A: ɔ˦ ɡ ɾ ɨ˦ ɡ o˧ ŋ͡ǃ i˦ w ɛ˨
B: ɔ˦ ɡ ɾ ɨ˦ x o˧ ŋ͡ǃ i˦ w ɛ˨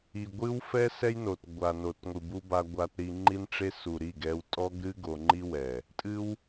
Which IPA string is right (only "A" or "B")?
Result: A